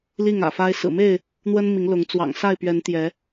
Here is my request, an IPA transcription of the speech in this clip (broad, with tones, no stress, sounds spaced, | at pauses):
l i˥˨ ŋ ä̰˨˩ f a˦ ɪ̯ s ɹ̩˨˩ m e˥˨ ɪ̯ | n̪ w ə˦ n m i˨˦ ŋ l ʊ˨˦ ŋ t͡s w ɑ̰˨˩ ŋ s a˥˨ ɪ̯ p ɥ ɛ˨˦ n t̪ j ɛ˨˦